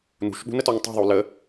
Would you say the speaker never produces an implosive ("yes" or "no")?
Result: no